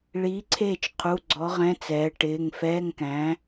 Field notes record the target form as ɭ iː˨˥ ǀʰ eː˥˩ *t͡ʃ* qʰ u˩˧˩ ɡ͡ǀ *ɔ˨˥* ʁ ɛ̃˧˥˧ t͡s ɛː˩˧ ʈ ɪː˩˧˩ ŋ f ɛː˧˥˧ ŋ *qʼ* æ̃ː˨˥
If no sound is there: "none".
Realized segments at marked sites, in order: t͡ʃ, ɔ˨˥, k

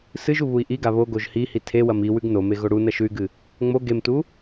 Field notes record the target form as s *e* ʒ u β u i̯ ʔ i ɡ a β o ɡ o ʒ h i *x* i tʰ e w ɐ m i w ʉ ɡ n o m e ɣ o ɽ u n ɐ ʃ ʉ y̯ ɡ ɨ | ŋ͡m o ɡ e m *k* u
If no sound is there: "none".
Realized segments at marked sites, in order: ɨ, h, t

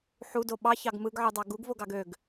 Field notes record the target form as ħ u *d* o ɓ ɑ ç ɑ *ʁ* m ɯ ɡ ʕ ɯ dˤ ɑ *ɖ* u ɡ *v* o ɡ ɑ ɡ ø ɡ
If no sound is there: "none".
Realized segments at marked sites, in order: d, ɡ, ɡ, v

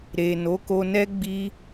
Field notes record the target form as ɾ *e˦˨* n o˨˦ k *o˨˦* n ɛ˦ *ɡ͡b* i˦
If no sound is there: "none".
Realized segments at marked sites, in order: e˨, o˧, ɡ͡b

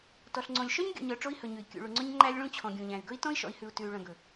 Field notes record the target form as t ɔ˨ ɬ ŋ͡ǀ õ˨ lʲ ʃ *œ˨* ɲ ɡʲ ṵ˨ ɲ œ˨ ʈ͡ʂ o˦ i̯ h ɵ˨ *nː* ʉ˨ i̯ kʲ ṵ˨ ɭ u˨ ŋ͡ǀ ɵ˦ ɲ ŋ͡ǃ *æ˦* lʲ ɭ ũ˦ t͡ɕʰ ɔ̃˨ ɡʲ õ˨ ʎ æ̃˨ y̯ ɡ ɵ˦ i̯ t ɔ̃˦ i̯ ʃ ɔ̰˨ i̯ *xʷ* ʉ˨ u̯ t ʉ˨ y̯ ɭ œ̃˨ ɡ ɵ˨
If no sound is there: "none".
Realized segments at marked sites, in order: œ˦, ɲ, æ˦, h

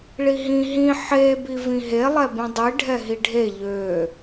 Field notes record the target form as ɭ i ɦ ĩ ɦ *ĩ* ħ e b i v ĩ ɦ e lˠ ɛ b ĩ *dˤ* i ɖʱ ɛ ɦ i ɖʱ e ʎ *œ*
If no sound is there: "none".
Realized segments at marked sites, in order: ĩ, dˤ, ø

